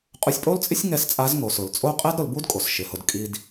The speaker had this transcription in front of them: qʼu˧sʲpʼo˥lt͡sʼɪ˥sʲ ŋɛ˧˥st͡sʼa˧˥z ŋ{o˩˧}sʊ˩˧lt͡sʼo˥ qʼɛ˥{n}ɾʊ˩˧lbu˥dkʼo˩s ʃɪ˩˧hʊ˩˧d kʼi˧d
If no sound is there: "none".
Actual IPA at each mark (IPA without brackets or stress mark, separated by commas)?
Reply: o˩˧, d